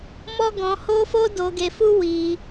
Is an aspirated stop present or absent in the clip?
absent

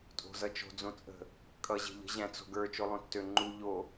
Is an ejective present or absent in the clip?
present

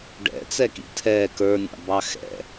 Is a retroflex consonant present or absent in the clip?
present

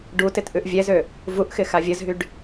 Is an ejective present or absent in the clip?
absent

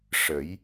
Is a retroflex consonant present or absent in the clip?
present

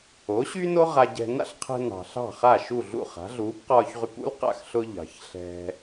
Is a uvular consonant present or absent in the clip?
present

